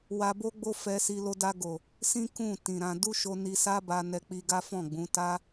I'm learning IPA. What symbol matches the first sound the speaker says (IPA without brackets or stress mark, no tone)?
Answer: w